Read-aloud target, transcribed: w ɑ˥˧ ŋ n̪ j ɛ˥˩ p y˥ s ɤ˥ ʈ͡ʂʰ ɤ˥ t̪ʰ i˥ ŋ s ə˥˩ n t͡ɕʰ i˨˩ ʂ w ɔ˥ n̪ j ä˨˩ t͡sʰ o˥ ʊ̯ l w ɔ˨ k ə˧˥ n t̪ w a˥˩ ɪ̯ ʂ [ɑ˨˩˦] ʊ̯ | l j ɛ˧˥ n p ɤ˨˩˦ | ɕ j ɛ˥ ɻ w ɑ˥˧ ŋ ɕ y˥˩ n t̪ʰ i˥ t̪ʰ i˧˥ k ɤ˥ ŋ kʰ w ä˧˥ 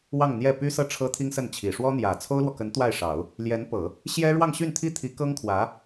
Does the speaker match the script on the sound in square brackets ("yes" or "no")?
yes